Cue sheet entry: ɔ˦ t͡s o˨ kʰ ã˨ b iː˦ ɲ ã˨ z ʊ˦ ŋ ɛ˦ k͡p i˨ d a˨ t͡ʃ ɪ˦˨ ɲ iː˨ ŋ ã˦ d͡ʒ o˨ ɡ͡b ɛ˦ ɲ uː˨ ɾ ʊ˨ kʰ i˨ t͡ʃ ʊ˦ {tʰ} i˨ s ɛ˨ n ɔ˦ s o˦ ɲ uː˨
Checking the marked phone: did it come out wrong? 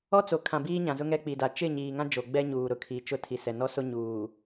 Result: no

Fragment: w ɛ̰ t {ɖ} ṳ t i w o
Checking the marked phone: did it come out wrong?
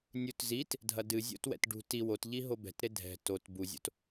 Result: no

